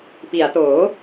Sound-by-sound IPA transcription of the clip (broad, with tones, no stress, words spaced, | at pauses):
pi˩˦a̯toː˩˦